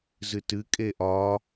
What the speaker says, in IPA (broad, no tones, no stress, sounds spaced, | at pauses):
z ɨ t ɨ kʼ e ʔ ɒ